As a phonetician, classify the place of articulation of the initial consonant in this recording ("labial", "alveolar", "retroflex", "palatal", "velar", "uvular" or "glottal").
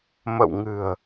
labial